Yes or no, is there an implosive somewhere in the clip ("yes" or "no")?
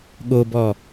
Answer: yes